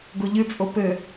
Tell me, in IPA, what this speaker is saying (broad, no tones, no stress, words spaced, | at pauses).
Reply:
ɡoʎɨt͡sʼo pɘ